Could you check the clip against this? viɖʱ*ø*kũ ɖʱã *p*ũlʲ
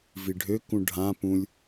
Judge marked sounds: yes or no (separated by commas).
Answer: yes, yes